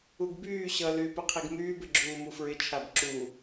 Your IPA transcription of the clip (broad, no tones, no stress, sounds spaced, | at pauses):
u ɡ b yː ɕ ʌ l yː p ɪ qʰ i ɡ m yː b ɪ ɡ͡ǁ uː m u f ɹ ɪ t͡ʃʰ a b ǁ u